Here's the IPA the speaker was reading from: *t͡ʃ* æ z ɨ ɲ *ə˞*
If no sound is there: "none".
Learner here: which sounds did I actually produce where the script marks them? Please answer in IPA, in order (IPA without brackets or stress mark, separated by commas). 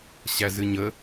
ɕ, ə